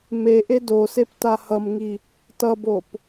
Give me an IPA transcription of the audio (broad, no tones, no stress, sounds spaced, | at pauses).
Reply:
m e ʔ e d o s e p t a h ʌ m ŋ i | t ʌ b o p